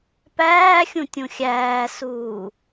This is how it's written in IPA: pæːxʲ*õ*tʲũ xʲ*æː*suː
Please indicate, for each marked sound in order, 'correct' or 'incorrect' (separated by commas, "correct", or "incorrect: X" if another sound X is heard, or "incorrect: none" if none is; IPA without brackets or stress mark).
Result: incorrect: ũ, correct